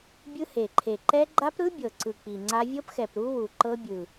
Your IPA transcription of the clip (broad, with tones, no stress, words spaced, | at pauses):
bʲɯ˦˥he˨˩ǃʰe˨˩ ǃɛ˦˥ ɡ͡ǃa˦˥pɾɯ˦˥ bʲɤ˨˩ǀɯ˨˩ k͡pi˨˩ŋ͡ǀa˦˥ vʲɤ˦˥pxɛ˨˩p ɾu˦˥ wu˨˩ ǃɤ˦˥bʲɯ˨˩